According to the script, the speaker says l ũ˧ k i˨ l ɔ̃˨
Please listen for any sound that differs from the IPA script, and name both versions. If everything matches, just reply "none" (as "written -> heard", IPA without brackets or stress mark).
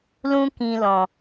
i˨ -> ĩ˨